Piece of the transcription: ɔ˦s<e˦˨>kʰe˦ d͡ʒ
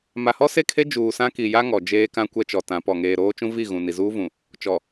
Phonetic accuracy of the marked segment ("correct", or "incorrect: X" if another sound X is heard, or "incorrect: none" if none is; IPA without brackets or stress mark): correct